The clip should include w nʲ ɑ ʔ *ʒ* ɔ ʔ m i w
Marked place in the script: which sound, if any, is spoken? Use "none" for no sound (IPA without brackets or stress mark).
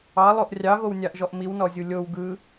ʒ